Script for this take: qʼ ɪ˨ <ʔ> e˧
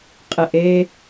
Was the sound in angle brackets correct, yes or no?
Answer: yes